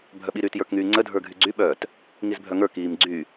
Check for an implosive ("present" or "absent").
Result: present